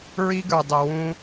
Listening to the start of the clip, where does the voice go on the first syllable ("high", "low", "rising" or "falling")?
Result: high